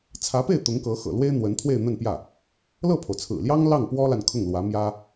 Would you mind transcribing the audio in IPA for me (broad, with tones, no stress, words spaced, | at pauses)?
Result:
t͡sʰä˧˥pe˥˩ɪ̯ t̪ʊ˧˥ŋkɤ˧˥xɤ̰˨˩lwe˥ɪ̯ n̪wə˧˥n t̪ʰwe˥˧ɪ̯n̪ə˥˧npjä˥˩ | lɤ˥˩pʰo˩ʊ̯t͡sʰɹ̩˨˩ljɑ˥ŋ lɑ˥˩ŋpwɔ˥la˨n kʰʊ˥˩ŋlwä˧˥ mjä˥